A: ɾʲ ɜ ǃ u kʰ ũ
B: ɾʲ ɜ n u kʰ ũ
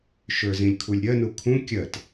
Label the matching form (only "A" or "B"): B